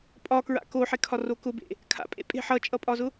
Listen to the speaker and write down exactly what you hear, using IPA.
pʼ ɒ k ɹ a̰ k o ħ e kʰ ɒ r o k ʊ b ḛ | kʰ a̰ pʼ ḛ pʼ e̤ ħ ʌ t͡ʃʼ ʌ pʼ ɒ z ʊ

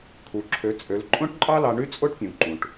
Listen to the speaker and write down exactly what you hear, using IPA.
kʰ u˩ ǁʰ ø˩˧ t͡sʼ ø˩˧ l ǃʼ õ˥ ʈ ǃʼ ɑ˥ l ɑ˧ ɳ y˥ t͡sʼ o˥ ʈ pʲ ũ˩ ǃ ũ˩ ʈ

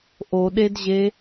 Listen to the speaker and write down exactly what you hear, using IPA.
ʔ o ɗ e d ʑ e

